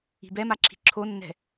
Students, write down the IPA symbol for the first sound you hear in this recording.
i̤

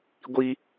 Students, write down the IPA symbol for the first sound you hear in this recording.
ɡʷ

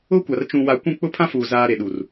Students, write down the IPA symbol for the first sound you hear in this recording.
ʊ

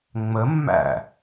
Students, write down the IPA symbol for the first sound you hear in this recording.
ŋ͡m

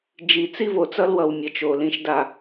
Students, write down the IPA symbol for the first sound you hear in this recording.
d͡ʒ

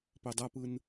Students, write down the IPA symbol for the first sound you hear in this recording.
p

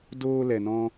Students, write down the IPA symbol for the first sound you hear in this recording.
d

